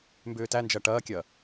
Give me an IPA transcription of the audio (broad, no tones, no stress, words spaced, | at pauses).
mbʏːtænd͡ʒɐ ʈɐːkʲɐː